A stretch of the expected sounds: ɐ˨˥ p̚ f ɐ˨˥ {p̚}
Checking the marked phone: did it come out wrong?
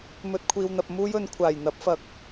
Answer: yes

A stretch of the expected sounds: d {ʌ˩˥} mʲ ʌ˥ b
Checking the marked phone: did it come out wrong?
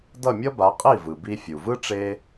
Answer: yes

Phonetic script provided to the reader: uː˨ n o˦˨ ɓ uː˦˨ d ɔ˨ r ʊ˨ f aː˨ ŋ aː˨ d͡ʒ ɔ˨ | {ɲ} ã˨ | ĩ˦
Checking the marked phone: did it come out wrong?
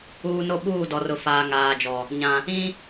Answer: no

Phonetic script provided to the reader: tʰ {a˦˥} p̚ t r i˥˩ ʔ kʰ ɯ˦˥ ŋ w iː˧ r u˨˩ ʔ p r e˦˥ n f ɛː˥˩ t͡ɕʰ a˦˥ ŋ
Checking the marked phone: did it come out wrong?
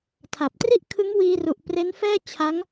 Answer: yes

